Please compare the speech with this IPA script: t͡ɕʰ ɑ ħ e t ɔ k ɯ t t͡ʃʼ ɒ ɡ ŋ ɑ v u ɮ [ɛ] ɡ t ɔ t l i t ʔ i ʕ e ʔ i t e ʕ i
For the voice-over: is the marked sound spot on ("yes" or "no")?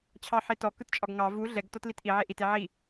yes